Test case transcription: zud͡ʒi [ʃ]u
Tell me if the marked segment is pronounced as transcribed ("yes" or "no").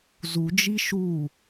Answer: yes